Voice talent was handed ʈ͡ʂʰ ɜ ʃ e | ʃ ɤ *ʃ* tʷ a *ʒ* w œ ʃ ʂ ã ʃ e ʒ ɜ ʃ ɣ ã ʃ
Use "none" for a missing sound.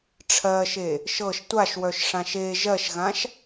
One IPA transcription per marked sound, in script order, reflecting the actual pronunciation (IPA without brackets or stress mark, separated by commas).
ʃ, ʃ